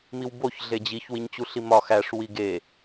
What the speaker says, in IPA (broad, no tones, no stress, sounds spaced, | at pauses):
m i w b o ç ɮ e d͡ʑ i ç w i ɲ t͡ɕ u ɬ i m ɒ x æ ʂ w i ɡ e